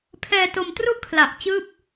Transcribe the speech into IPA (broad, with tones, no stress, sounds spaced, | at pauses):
pʰ ɛː˧ t o˧ m t r u˥˩ ʔ kʰ l a˨˩ ʔ t͡ɕ ɯː˥˩ p̚